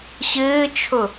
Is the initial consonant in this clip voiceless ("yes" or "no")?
yes